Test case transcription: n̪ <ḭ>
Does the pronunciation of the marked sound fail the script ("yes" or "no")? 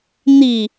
yes